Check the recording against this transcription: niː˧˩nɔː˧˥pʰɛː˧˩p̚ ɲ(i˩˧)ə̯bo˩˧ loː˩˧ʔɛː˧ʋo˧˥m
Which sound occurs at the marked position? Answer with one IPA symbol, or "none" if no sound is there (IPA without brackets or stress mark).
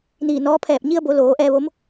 i˧